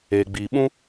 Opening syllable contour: low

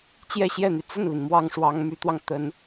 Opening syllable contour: falling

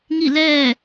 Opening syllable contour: falling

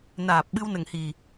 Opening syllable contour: low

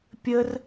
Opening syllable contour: high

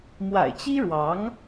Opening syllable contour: low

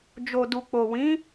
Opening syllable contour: low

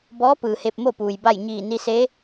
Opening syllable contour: rising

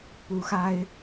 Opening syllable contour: rising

